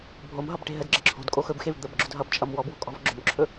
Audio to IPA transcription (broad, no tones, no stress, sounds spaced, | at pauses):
bʱ o m ɦ ʌ b ʈ e̤ ɦ ə d ɡ͡ǁ ə ǁʰ o̤ d kʼ o x ɵ b x e v d̪ ə b ɡ͡ǁ ʊ d ɦ ʌ b t͡ʃʼ ʌ m w ɔ b w o̤ kʼ ɔ̤ v ɡ͡ǁ ʊ m ǁʰ ɵ